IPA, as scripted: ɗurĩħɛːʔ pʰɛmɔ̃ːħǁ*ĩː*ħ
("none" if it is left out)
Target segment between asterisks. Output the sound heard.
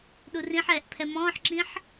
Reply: ĩ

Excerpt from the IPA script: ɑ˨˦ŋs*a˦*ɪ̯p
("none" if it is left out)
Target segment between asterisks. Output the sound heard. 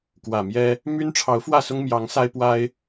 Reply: a˦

